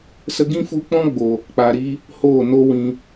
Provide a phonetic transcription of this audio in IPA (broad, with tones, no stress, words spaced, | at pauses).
sə˧ɡĩ˦ fu˧k͡pɔ̃˦ɡ͡bo˨ | k͡pa˨ ɾi˦ | hoː˦˨no˦wĩ˧